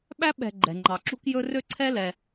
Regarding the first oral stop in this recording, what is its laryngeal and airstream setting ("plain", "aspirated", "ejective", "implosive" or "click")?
implosive